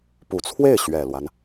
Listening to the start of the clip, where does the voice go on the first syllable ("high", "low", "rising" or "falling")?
low